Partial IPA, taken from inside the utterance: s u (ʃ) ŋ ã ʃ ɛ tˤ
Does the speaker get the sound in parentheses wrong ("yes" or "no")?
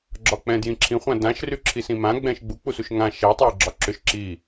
no